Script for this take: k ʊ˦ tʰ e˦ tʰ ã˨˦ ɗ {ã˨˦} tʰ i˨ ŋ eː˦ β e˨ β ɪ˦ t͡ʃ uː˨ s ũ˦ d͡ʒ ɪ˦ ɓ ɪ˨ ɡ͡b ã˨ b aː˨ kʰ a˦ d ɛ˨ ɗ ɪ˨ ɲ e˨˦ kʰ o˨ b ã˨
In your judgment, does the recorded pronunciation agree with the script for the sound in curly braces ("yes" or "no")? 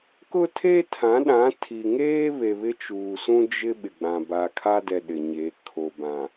yes